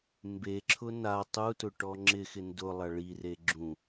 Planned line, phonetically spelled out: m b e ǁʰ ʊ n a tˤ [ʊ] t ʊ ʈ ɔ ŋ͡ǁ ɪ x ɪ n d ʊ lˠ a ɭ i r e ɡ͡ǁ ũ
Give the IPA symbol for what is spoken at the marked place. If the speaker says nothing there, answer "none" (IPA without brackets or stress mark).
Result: u